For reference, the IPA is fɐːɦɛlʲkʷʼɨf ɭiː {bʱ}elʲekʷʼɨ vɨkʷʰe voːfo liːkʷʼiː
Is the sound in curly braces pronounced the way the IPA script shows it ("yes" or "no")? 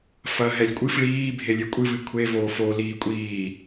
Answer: yes